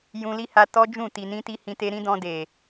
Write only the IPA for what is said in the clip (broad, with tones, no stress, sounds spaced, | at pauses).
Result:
j ũ˧ l i˦ h a˧ t ɔ˦ d͡ʒ ũ˦˨ t i˨ n ĩ˧ t i˧ h ĩ˧ t e˧ ɾ ĩ˦ d ɔ̃˧ d e˨